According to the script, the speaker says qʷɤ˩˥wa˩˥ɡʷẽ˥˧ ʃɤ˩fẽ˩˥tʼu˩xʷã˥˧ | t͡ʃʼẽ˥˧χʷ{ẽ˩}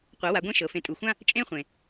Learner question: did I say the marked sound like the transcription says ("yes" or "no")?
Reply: yes